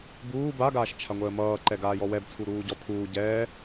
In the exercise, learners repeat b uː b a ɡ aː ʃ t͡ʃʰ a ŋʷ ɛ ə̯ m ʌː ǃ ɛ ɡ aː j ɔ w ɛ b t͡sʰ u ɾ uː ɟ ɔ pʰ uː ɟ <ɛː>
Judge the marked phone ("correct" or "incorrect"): correct